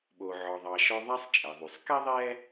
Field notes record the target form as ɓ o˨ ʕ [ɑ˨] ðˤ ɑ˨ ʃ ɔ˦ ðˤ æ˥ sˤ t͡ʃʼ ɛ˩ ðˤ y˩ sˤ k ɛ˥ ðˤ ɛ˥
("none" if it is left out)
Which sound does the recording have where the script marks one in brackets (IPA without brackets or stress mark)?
ɔ˨